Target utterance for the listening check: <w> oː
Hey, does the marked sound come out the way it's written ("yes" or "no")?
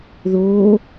no